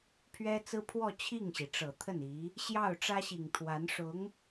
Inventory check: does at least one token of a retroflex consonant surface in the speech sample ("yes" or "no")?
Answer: yes